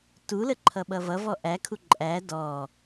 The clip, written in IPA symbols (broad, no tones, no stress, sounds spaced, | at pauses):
t u l ə ǃʰ ʌ ɓ ʌ v ʌ v ɔ ʔ æ kʰ u ǃʼ æ d ɔ